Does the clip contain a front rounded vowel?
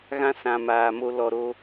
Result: no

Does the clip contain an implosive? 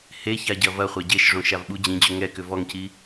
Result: yes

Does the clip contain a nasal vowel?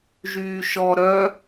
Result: no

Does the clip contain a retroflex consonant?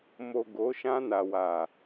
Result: no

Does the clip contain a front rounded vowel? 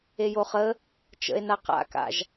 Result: no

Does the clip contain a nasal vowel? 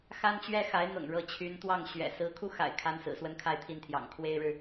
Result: no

